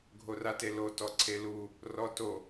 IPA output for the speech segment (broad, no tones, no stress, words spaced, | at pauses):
ɡʱoratelo tɔǀʰelu | rɔto